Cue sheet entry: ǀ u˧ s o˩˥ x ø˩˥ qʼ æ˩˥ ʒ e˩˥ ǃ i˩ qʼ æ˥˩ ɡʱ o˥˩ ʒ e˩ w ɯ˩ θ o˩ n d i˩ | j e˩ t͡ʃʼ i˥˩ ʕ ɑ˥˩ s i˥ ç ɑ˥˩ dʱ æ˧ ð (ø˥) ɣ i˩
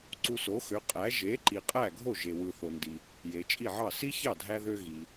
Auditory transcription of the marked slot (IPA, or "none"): ø˧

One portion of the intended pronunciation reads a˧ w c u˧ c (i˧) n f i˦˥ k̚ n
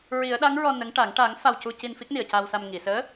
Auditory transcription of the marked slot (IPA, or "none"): i˧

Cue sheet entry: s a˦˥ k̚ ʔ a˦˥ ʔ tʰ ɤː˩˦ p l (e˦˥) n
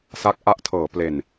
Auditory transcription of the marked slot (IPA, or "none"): e˨˩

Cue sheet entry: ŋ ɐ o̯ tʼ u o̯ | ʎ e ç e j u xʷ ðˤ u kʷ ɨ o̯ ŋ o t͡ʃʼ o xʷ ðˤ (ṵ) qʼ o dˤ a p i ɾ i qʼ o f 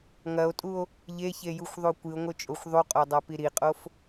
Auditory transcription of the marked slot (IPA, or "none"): u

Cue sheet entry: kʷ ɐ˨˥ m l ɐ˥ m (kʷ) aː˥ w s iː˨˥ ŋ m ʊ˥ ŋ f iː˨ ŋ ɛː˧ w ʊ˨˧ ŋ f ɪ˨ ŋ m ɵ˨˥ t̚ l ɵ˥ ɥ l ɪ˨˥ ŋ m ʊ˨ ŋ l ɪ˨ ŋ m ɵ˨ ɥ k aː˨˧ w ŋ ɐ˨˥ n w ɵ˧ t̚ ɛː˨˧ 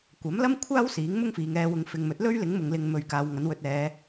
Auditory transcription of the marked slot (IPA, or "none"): kʷʰ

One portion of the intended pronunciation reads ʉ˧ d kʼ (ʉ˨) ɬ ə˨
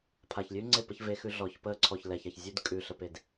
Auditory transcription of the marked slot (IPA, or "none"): ʉ˨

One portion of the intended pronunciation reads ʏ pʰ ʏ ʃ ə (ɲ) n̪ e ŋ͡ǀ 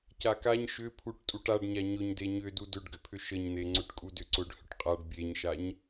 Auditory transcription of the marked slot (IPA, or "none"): ɲ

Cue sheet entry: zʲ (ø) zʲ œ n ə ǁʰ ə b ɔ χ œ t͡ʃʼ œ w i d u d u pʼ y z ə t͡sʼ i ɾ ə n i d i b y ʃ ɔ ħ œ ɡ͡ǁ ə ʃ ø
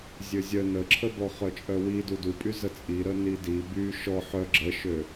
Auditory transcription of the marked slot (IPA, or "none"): ø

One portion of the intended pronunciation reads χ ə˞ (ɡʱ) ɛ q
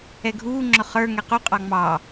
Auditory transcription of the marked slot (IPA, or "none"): ŋ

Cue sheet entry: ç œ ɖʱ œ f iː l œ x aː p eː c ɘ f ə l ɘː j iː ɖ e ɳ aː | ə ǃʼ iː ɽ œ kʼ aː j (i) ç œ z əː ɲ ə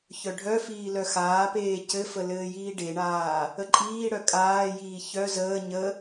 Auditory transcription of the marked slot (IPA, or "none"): iː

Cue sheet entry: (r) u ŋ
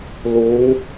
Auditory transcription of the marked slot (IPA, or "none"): l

